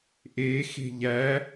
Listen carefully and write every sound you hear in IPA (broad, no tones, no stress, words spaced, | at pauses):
ʔe xe̤ʎæ